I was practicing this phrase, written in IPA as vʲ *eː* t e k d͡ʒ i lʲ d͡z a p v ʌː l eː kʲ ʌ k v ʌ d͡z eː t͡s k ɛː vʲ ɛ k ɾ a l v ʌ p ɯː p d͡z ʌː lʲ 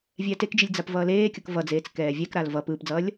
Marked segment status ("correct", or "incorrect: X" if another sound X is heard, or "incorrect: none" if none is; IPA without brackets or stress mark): incorrect: ɛː